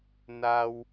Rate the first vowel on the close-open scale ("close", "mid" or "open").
open